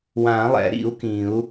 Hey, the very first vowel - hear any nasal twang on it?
yes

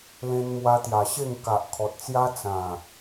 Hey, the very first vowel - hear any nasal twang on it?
yes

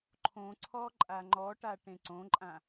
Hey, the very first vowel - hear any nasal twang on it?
yes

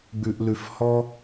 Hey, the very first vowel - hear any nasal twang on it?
no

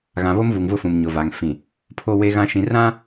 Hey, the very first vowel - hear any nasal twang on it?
yes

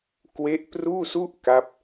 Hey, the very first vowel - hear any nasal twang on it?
no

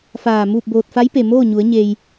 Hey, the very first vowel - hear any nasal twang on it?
no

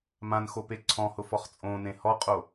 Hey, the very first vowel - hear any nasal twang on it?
yes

